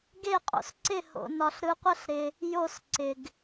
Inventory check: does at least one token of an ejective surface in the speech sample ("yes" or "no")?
yes